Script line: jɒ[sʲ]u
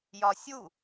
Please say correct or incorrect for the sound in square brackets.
correct